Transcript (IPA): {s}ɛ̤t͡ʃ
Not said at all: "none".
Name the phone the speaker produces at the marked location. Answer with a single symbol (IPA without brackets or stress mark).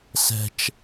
s